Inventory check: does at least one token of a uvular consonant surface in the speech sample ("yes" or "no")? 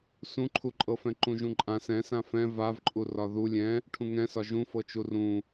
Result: no